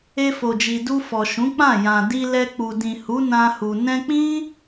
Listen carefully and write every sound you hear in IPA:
e˧ f o˨ d͡ʒ i˨ d u˧ f ɔ˨ ʃ ũ˨˦ k͡p ã˦˨ j ã˨ d i˧ l ɛ˧ k͡p u˨ d ĩ˨ h u˨˦ n ã˧ h u˨ n ɛ̃˧ k͡p ĩ˦

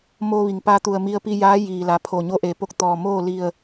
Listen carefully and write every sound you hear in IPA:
m oː˧ ʋ i˩ ŋ p a˧ t̪ u˧˩ ə̯ m i˧ ə̯ p i˧ j aː˧˥ j iː˩ l a˩˧ pʰ o˧˩ ɲ o˧˥ ʔ e˩ p o˥˨ k̚ t̪ ɔː˧˩ m oː˥˨ l i˧˩ ə̯

